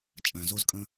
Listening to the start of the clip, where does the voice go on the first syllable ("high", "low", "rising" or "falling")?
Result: low